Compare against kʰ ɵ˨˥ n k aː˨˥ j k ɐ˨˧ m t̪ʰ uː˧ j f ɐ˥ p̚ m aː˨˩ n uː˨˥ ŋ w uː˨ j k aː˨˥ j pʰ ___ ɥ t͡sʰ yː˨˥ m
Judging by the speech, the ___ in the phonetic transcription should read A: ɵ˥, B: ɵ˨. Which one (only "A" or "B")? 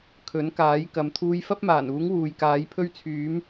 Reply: A